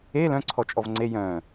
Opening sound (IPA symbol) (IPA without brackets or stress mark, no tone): e